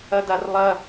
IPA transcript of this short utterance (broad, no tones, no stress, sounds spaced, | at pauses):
ɐ d a r lˠ ɐ